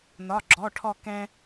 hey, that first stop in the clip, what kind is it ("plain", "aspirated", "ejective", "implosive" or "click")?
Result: click